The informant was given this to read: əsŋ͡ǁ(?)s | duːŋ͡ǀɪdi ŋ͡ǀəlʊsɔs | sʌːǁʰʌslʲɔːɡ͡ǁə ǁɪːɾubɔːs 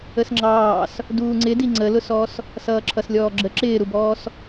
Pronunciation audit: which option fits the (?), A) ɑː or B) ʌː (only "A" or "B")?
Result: A